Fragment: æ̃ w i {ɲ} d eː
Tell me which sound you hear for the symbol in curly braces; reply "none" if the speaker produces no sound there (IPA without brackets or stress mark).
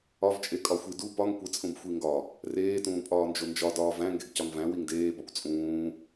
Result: ŋ